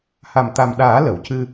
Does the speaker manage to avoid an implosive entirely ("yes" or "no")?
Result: no